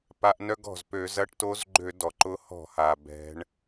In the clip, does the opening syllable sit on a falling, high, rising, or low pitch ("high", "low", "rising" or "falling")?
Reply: rising